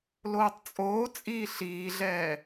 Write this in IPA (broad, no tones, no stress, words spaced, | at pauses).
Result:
loːtˤt͡sʼoːt͡sʼiː ɬiːɮɛː